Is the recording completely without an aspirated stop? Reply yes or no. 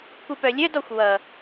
yes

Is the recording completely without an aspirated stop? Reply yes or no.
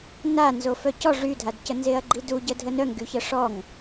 yes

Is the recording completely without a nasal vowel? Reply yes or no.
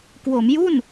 yes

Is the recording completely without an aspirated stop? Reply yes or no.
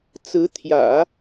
no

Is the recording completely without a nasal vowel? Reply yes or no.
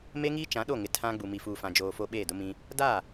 no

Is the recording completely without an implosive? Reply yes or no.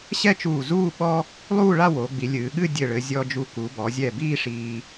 no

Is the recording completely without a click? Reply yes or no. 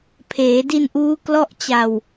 yes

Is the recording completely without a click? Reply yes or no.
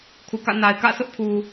yes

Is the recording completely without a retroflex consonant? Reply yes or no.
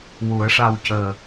no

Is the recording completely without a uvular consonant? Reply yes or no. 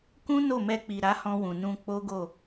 yes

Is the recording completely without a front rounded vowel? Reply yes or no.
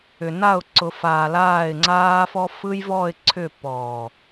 no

